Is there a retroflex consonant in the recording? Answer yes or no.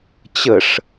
yes